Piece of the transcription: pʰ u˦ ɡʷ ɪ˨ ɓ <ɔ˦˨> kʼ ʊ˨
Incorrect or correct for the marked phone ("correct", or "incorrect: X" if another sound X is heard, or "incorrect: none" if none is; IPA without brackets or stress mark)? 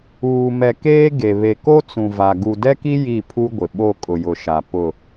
incorrect: o˦˨